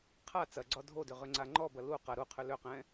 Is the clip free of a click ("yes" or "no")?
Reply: no